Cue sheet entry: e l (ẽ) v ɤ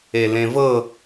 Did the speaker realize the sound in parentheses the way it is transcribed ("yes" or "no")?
yes